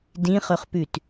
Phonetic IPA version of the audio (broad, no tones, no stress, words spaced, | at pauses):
dĩχɵχpʉt